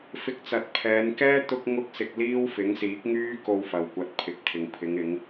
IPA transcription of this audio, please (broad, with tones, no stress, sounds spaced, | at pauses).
f ɪ˧ k̚ t͡s ɐ˨˥ t̚ pʰ ɛː˨˧ n k ɛː˥ t̪ ʊ˥ k̚ ŋ ʊ˥ k̚ s ɪ˧ k̚ l iː˥ w f ɪ˨˥ ŋ s iː˨˥ k̚ ŋ yː˥ k o˧ w f ɐ˨ w kʷ ɐ˨˥ t̚ pʰ ɪ˨ k̚ t̪ʰ ɪ˨ ŋ pʰ ɪ˨˧ ŋ ɪ˨˧ ŋ